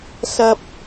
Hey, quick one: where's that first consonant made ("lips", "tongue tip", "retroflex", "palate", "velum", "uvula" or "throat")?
tongue tip